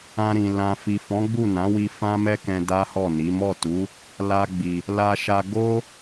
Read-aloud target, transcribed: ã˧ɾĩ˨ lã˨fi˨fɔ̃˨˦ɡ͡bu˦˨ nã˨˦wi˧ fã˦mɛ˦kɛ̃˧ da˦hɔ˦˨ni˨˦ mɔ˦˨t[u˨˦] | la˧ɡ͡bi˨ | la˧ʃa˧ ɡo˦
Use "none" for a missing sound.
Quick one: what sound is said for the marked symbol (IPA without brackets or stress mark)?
u˨˦